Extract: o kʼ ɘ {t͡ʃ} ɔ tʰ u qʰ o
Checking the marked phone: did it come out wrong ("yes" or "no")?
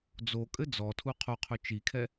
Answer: yes